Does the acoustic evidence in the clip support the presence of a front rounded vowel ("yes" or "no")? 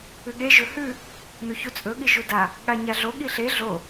no